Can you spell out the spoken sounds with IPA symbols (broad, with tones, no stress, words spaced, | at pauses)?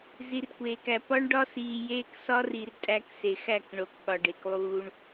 zi˨rkʷeː˨kæ˨ pɒ˦ɳɖɒ˦siː˨jeː˦k sɒ˦ri˨r tʼæ˦kse˨ xæ˦˨kɳo˨k ɠɒ˨ɖe˨klˠuː˦ɳ